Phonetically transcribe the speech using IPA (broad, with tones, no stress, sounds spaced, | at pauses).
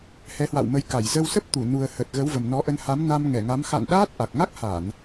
h ɛ˨˦ h w a̰˧˨ w m ə˨˦ j k a˧˩ j z ə˧ w s ə˦˥ p̚ t̪ u˧˩ n u˨˩ ə̯ h ə˨˩ t̚ ɣ ə˨˦ w v ə˨˩ m n ɔ˨˦ ʔ ə˧ n h a˨˦ m n a˧ m ŋ ɛ˧˩ ŋ a˨˦ m x a̰˧˨ n ɗ aː˦˥ t̚ ʔ a˨˩ k̚ ŋ a˦˥ k̚ h a˧˩˨ n